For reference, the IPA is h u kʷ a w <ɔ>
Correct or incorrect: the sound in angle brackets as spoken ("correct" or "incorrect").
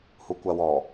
correct